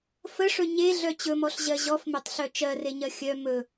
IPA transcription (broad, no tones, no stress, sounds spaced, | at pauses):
f ə ʂ ɵ ɲ e ɮ œ t͡ɕ ɵ m ɔ ɬ ʑ ɜ ʑ ɔ f m e tˤ ɬ œ t͡ʃ ɜ r e ɲ ɜ xʲ œ m ɵ